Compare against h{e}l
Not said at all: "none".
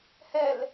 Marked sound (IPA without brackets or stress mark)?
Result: ɛ